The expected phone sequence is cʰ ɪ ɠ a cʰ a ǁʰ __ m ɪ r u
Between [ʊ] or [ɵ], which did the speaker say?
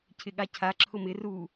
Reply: ʊ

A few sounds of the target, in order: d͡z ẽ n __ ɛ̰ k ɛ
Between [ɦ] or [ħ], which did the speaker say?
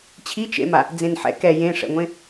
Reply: ħ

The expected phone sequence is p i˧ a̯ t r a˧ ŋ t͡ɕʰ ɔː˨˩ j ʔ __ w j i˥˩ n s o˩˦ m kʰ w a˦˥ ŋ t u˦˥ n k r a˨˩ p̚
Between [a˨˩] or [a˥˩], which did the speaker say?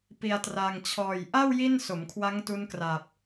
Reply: a˥˩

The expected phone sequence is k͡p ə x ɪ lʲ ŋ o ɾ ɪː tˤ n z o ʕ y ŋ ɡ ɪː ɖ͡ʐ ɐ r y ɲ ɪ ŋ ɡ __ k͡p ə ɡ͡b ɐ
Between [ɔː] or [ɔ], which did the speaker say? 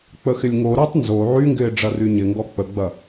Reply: ɔ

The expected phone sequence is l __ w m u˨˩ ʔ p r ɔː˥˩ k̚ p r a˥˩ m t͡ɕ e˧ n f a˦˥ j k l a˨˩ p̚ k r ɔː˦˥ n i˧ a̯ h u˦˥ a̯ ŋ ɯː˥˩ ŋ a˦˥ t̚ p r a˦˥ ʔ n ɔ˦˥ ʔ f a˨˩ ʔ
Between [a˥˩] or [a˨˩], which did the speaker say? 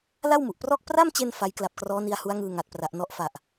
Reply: a˥˩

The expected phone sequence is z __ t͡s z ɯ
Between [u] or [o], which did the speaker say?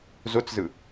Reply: o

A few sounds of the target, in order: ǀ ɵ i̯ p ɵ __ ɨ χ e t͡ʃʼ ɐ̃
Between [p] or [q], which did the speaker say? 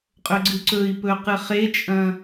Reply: q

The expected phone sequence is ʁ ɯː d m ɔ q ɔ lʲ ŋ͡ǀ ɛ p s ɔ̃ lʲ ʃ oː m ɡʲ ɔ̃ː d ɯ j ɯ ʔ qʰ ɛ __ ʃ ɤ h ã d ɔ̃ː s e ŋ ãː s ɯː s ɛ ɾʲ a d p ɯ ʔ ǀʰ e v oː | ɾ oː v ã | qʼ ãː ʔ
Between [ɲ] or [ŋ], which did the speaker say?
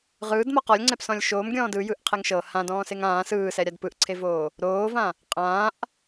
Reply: ŋ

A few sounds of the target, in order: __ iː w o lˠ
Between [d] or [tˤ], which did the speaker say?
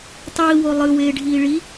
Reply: tˤ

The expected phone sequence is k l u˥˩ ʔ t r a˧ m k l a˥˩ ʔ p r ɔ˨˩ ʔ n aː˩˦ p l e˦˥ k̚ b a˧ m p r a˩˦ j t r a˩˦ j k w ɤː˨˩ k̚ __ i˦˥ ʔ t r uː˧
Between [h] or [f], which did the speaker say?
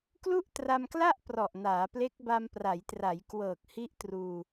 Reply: h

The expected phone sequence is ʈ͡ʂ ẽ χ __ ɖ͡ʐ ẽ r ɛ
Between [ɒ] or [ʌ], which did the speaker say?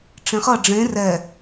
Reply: ʌ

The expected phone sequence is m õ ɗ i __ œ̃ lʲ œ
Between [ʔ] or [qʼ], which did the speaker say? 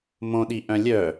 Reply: ʔ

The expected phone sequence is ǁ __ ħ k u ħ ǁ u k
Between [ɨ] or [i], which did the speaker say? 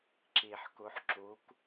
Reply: i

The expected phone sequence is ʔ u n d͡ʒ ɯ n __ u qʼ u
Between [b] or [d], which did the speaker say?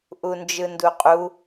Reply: d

